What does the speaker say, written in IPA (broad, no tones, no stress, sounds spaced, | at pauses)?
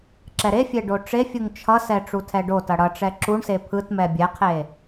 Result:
ǁ ɛ ɾ e fʲ e ɖ o ʈ͡ʂ e fʲ u ŋ t͡ʃʰ ʌ s ɛ ʈ͡ʂ u tʰ ɛ ɖ o t ʌ ɽ ʌ ʈ͡ʂ ɛ ǁ u ɳ s e pʰ ɯ t m ɛ bʲ ɛ qʰ e